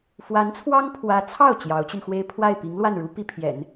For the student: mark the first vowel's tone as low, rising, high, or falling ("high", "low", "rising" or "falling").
rising